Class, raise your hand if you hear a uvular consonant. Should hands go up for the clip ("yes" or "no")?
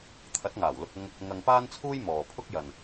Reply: no